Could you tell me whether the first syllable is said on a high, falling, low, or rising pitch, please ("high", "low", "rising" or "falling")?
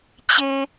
high